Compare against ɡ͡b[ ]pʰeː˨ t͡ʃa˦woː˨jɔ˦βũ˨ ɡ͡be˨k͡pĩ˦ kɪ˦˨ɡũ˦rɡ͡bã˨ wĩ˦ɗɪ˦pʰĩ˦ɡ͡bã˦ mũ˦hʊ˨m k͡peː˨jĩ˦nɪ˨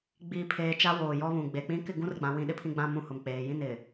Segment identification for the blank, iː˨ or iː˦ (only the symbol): iː˨